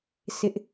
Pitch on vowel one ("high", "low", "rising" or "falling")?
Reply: high